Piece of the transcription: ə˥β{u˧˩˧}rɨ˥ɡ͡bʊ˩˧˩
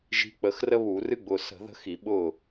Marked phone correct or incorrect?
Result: correct